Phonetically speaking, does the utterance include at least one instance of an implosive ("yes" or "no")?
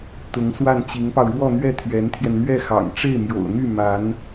no